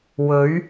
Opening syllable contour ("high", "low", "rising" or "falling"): rising